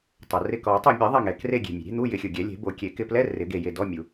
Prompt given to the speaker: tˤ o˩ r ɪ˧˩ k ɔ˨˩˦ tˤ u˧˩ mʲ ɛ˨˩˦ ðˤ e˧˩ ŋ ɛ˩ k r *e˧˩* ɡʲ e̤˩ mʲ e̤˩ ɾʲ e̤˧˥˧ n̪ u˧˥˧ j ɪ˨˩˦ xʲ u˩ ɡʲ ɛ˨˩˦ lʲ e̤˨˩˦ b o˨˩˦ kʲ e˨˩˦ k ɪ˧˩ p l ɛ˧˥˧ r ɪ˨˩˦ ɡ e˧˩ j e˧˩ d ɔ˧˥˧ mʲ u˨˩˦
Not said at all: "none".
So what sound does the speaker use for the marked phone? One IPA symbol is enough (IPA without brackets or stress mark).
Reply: e˧˩